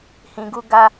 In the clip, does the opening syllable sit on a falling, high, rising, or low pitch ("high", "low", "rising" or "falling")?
low